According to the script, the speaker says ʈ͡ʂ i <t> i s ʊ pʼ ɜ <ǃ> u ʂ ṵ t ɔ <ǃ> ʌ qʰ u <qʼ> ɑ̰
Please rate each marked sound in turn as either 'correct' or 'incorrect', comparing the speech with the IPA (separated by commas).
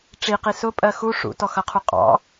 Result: incorrect, incorrect, incorrect, correct